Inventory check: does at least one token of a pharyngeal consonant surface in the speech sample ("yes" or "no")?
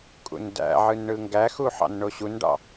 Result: yes